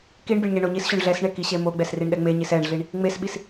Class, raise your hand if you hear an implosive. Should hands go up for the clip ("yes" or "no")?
yes